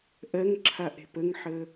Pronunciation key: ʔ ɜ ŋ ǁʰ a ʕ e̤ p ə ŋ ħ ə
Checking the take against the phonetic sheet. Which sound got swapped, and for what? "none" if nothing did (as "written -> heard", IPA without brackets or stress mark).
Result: ʕ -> ʔ